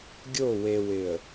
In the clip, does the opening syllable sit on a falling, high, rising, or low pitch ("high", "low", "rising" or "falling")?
falling